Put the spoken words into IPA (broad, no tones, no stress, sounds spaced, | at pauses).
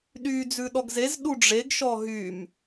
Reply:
ɗ yː d͡z ʉ ɗ ɔ ɡ z e z ɗ u ɖ͡ʐ e ɡ ʃ ɔ ɦ yː m